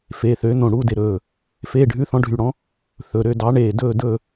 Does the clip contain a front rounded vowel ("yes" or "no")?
yes